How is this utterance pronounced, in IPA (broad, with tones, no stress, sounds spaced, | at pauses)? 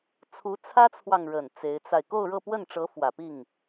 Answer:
t͡sʰ u˧˥ t͡sʰ ä˥ t͡sʰ w ɑ˨ ŋ ɻ ə˨˩ n t͡s e˧˥ ɪ̯ t͡s a˧ ɪ̯ k o˥˧ ʊ̯ ɻ ɤ˥˧ p w ə˥˩ n ʈ͡ʂ ɤ˧˥ f w ä˨˩ p i˥˩ ŋ